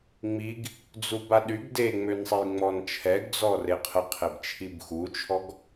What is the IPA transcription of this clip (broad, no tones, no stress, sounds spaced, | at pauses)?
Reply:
ŋ͡m i ɡ | d͡z u b a ɗ y ɡ d e ŋ͡m ø n sˤ e j ŋ͡m ɔ n t͡ʃʰ ɛ ɡ d͡z ɔ r e qʰ ə qʰ e b t͡ʃʰ i b x u t͡ʃʰ ɔ ɡ